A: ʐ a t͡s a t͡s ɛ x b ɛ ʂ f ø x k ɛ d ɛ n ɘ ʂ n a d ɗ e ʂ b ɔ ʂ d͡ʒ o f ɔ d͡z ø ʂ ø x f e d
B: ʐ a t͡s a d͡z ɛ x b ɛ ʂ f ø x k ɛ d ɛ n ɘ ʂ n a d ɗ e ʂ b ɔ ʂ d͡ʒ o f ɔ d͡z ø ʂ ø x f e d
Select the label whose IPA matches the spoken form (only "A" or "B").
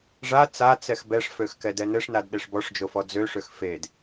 A